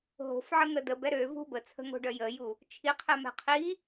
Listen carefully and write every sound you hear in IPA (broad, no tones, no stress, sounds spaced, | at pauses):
ɦ o̤ f ʕ ə ŋ ə d ə b ɛ ɾ ø v ṳ b ə t͡sʰ ə̤ ŋ o̤ ɖ œ j ə j u | t͡ʃʰ i qʰ ɛ m ɛ̤ qʰ i